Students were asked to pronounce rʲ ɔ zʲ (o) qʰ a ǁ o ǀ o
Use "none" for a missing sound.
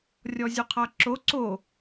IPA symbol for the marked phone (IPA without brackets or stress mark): u